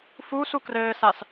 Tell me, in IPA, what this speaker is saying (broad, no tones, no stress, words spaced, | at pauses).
fuːsu krɘːsas